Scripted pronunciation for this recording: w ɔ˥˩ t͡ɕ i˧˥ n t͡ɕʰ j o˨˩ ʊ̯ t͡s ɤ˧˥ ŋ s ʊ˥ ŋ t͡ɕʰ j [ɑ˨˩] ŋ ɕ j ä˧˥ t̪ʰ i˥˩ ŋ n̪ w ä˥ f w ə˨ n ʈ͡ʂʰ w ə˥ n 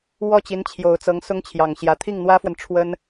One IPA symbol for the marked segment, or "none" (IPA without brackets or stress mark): ɑ˨˩